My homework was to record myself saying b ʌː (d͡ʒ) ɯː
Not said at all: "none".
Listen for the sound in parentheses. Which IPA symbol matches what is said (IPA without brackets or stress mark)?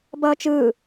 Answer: t͡ʃ